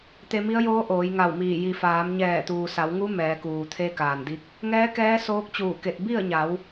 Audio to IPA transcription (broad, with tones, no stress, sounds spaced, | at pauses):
t̪ e˧ m i˧˥ ə̯ j oː˧˥ ʔ oː˩˧ j ŋ a˧˩ w m iː˧˩ j i˩ f aː˩˧ m ɲ ɛː˧˩ t̪ uː˩ s a˩˧ w ŋ u˧˥ m ɛː˩˧ k uː˩ t̪ʰ e˧˥ k aː˩ n d i˧˥ k̚ | ŋ ɛː˧˥ k ɛː˧˥ s oː˧˥ k̚ t͡ɕ uː˧˩ k e˧˩ t̚ b i˥˨ ə̯ ɲ a˩˧ w